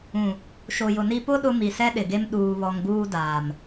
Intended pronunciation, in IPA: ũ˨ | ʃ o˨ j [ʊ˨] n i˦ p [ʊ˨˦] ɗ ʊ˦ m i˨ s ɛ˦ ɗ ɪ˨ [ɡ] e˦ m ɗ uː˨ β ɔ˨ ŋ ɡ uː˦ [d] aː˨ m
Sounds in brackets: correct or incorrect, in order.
correct, incorrect, correct, correct

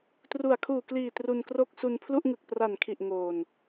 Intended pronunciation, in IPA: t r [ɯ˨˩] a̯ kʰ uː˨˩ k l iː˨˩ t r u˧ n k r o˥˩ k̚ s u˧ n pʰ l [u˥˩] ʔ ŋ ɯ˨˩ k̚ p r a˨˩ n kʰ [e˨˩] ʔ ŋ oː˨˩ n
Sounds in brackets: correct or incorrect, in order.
incorrect, correct, incorrect

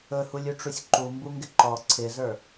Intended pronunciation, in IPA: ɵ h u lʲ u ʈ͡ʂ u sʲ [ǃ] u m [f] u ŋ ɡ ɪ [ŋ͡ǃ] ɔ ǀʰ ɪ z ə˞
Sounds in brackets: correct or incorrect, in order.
correct, incorrect, incorrect

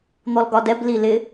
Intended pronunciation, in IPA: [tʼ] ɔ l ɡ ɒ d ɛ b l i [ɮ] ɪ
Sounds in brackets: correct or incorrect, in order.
incorrect, incorrect

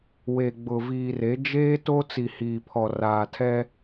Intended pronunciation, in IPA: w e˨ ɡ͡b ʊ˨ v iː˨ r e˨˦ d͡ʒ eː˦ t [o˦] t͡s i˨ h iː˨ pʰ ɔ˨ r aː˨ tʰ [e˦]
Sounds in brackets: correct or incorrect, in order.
correct, incorrect

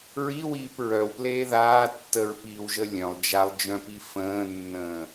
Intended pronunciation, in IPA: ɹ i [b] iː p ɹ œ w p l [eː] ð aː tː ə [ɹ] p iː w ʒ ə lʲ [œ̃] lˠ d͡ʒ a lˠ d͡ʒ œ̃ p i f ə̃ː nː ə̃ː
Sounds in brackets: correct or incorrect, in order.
incorrect, correct, correct, correct

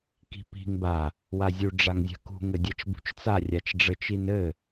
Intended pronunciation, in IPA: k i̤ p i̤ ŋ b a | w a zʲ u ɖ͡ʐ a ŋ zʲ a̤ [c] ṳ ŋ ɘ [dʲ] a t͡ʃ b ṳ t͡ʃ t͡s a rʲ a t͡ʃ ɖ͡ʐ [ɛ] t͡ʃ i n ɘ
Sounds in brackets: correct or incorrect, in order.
incorrect, correct, incorrect

